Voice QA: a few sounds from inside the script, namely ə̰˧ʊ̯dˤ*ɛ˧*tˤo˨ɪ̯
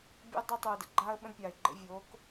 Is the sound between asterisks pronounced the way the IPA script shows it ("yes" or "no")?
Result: yes